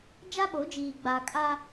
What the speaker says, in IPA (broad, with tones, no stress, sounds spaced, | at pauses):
d͡ʒ a˦ ɓ o˨˦ d͡ʒ iː˨ ɡ͡b a˨ kʼ a˦